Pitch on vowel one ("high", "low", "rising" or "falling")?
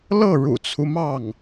falling